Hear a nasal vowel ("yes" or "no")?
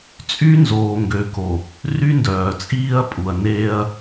no